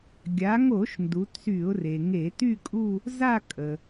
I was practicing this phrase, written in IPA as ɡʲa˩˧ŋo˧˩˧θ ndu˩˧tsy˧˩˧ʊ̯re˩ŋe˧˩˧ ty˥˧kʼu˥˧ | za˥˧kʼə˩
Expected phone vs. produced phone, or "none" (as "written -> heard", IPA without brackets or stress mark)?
θ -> ʃ